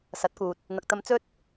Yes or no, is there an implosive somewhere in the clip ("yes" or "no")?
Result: no